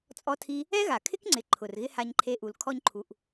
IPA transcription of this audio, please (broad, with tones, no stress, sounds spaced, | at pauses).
t͡sʼ ɔ˦ tʰ i˦ | ɛ˦ ɣ a˨ kʰ ɪ˦ k ŋ͡ǀ ɪ˨ ǃʰ ʊ˨ r ɣ ɪ˦ h a˧ ɲ ǃʰ e˧ ʔ u˨ l kʰ ɔ˧ ɲ ǃʰ u˨ ʔ